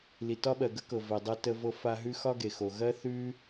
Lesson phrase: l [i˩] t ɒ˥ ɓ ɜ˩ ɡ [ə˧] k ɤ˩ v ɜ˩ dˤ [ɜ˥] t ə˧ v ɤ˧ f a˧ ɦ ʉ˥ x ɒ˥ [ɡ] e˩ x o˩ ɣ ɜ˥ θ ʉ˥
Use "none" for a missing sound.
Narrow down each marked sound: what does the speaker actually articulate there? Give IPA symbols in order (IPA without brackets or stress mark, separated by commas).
i˩, ə˥, ɜ˧, ɡ